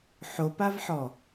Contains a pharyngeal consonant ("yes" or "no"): yes